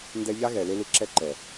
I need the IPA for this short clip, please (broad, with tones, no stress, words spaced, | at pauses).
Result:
ndɛ˦ ʎa˦ɣɛ˨le˧ lɯ˧ǁɛ˦ǃɛ˨